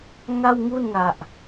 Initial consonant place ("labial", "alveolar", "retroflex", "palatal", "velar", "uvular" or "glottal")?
velar